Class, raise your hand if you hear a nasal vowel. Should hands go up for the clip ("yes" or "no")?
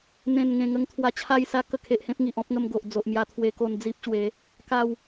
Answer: yes